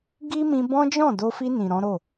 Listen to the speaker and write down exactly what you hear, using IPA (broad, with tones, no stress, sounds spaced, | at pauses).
ɡ i˦ m ĩ˧ b ɔ̃˦ d͡ʒ ɔ̃˦˨ d o˧ f i˧ n ĩ˨ ɾ ɔ̃˨˦ ɾ o˦˨